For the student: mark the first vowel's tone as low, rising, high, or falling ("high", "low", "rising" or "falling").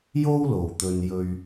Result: high